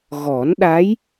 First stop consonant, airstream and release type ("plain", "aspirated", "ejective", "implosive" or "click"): implosive